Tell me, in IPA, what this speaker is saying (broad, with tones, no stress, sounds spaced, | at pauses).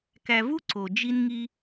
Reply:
k æ˨ v u˦ ǀ o˨ d͡ʒ i˦ n ŋ i˦